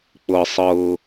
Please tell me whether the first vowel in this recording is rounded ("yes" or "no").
no